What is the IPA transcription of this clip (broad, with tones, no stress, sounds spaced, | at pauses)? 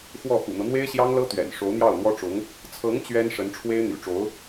x w ɔ˥˩ x ṵ˨˩ n̪ ɤ˦ n̪ w e˥ ɪ̯ ɕ j ɑ˥ ŋ l ɤ˥ t̪ ɥ ɛ̰˨˩ n ʂ o˧˥ ʊ̯ n̪ j ɑ˥˩ ʊ̯ n̪ w ɔ˥ ʈ͡ʂ ʊ˧˥ ŋ | t͡sʰ ɤ˧˥ ŋ t͡ɕ ɥ ɛ˥ n ʂ ə˧˥ n ʈ͡ʂʰ w e˥ ɪ̯ n̪ y̰˨˩ ʈ͡ʂ o˧˥ ʊ̯